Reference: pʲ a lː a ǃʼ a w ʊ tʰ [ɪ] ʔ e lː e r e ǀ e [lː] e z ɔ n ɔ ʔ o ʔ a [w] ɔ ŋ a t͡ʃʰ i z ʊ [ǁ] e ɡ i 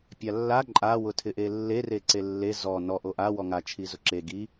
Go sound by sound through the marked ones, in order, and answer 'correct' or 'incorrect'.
correct, correct, correct, correct

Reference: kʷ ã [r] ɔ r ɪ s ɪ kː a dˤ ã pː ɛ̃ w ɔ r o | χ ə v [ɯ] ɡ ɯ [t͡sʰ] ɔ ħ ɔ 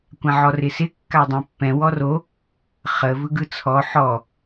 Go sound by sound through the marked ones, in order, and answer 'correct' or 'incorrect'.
incorrect: ʕ, correct, correct

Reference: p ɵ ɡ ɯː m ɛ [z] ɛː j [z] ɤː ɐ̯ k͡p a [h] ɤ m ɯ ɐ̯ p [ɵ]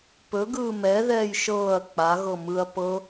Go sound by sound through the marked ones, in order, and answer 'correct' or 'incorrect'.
incorrect: ð, incorrect: ʃ, incorrect: ɣ, incorrect: ɤ

